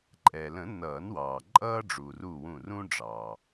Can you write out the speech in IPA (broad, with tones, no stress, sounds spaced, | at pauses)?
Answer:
ǃʼ ɛ˩ l ə̃˨˩˦ n ʌː˨˩˦ n w ɑː˩ ǃʼ ʌː˦ ɖ͡ʐ uː˩ r uː˧˩ w ũ˧˩ r ũ˦ ɖ͡ʐ ɑː˩